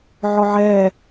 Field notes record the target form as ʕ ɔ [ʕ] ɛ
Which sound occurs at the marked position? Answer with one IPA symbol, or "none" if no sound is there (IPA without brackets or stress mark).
ʕ